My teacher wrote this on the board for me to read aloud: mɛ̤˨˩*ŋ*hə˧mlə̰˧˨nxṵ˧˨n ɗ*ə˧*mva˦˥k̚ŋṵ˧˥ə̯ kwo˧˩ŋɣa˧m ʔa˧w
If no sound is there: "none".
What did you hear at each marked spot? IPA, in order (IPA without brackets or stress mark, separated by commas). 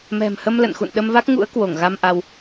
m, ə˧